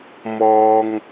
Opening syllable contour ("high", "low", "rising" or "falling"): high